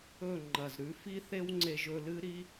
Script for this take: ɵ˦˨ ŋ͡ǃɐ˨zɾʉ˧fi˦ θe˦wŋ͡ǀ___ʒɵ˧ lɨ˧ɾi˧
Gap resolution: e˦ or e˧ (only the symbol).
e˧